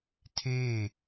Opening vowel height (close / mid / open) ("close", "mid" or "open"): mid